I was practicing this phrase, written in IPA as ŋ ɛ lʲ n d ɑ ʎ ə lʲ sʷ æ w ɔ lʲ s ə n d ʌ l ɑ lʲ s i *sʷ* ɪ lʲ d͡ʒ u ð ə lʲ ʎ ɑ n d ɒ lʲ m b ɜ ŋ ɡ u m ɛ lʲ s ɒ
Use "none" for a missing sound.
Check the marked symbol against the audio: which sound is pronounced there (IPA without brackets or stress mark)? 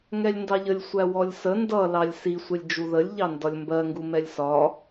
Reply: sʷ